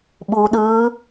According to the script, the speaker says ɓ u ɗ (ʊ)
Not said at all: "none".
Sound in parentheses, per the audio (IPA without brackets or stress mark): ɯ